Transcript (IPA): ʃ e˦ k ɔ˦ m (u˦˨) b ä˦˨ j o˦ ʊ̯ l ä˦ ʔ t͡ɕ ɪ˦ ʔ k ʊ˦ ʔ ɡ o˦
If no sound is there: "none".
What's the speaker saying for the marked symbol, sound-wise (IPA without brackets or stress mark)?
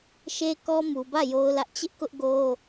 u˨